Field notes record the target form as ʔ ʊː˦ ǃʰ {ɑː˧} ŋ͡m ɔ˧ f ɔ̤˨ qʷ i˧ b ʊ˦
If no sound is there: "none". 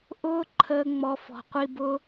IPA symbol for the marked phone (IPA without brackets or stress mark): əː˧